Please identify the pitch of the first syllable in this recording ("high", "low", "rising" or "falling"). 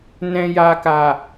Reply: low